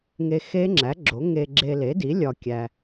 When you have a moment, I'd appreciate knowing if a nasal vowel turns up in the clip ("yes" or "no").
no